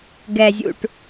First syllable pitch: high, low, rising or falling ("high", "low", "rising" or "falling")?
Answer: low